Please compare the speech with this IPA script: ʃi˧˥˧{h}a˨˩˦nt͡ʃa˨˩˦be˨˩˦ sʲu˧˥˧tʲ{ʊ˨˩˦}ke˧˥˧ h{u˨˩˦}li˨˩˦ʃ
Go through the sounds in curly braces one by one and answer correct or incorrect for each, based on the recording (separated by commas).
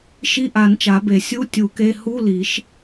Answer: incorrect, incorrect, incorrect